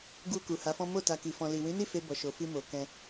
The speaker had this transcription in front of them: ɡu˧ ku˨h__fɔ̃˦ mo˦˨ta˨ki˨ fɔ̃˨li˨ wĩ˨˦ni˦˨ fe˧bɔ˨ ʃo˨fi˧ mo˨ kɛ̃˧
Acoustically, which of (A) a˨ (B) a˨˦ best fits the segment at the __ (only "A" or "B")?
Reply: B